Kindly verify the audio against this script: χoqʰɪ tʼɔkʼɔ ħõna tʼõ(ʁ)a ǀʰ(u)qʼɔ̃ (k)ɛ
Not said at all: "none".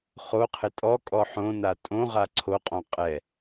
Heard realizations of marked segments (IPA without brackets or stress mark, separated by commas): ʁ, o, qʼ